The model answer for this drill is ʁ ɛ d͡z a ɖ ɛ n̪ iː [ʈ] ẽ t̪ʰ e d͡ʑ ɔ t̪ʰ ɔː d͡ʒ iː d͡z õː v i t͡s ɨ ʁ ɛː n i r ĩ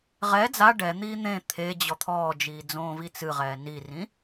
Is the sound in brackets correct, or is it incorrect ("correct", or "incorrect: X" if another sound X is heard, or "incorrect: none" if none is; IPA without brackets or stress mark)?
incorrect: n̪